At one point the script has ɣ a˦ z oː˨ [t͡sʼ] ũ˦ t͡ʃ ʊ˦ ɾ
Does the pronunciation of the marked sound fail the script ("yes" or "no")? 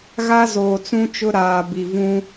yes